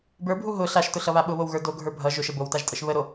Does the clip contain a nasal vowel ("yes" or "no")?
no